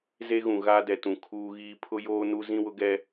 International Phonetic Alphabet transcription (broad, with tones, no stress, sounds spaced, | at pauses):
z e˦ ɣ ũ˨ ɣ a˦ d ɛ˨ t ũ˨ kʰ uː˦ ɣ iː˦ pʰ ʊ˦ j oː˦ n u˦ z ĩ˦ w ʊ˦ ɡ ɛ˦